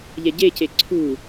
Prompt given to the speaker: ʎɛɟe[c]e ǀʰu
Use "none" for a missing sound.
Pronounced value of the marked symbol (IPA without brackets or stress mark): c